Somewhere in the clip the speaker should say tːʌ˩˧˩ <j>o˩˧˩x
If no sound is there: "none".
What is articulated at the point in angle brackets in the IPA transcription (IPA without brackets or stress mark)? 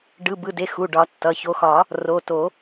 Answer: ç